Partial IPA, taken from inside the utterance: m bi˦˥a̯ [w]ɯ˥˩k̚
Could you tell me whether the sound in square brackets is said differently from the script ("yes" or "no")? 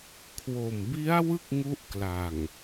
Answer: no